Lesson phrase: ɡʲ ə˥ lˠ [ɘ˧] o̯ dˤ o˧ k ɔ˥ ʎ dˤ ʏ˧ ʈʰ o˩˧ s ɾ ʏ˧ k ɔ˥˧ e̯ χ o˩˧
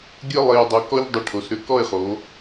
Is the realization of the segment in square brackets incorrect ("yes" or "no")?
yes